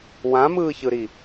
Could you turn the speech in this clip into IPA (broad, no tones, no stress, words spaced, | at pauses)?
wãmɯːçɯɾi